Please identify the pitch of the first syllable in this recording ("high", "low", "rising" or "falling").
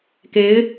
rising